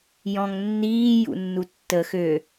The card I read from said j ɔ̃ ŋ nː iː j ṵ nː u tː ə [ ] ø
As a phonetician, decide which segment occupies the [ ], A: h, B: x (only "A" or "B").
B